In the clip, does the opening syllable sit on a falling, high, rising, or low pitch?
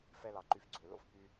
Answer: high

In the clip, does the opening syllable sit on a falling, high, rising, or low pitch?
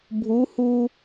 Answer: rising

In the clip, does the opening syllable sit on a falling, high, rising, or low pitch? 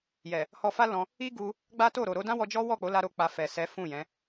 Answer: low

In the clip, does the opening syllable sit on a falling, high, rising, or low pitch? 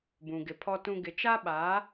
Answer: low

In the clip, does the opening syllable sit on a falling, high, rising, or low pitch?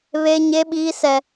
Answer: high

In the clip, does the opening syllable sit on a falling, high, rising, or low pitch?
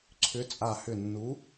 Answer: rising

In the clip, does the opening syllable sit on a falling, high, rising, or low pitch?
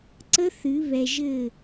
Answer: high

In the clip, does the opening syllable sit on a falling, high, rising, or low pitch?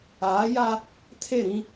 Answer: rising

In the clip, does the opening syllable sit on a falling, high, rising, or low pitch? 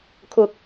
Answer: high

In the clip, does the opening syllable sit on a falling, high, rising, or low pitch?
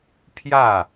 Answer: falling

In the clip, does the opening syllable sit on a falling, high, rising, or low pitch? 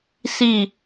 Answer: falling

